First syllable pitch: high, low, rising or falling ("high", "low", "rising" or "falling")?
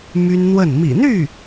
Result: high